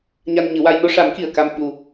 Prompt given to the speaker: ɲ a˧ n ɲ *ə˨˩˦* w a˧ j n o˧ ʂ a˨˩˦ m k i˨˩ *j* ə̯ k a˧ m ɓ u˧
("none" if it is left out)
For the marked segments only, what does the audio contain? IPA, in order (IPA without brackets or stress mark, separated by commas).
ɨ˨˩˦, none